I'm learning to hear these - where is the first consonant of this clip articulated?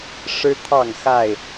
retroflex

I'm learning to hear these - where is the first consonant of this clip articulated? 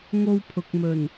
velum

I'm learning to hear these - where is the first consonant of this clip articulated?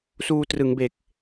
tongue tip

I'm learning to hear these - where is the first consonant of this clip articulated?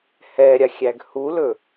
throat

